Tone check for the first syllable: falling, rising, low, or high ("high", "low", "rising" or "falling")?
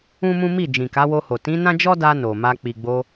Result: high